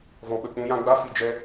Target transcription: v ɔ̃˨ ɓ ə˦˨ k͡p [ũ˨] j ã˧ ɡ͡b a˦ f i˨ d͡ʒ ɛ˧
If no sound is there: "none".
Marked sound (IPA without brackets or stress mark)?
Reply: ũ˧